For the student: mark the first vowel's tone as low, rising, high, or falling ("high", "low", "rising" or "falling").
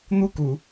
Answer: falling